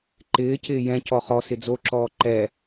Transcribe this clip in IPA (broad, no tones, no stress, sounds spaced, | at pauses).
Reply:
ǃ ɪː c ɪː j ɛ̃ c ɔ χ ɔ s ɪ d͡z o ǁ ɔː ǃ ɛ